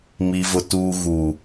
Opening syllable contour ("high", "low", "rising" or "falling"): low